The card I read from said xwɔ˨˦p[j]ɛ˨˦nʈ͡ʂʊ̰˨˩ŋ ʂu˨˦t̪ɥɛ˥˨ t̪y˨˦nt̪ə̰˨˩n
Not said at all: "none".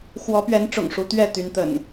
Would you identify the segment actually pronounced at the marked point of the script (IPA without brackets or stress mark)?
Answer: ɥ